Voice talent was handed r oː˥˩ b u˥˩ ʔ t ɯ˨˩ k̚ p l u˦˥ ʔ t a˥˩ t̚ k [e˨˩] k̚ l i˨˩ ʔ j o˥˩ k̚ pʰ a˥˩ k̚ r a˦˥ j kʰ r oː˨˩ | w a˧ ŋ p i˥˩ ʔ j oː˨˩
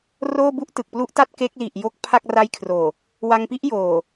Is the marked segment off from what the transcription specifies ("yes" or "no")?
yes